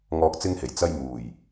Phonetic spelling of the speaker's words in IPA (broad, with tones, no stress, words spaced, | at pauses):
ŋɔː˧k̚t͡sɪ˥ŋhe˨˩j t͡sɐ˧j muː˨˩j